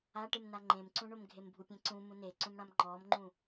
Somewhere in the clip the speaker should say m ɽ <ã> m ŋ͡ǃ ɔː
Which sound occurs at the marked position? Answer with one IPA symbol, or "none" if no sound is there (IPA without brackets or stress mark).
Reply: ã